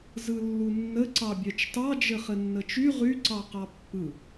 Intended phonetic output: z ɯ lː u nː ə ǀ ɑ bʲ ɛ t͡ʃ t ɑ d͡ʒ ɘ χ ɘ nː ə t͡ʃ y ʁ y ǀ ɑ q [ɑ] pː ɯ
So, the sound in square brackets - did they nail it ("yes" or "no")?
yes